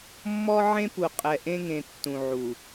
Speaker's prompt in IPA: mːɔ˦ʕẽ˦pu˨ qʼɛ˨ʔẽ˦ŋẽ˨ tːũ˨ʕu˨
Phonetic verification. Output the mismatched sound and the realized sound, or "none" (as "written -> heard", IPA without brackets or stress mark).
none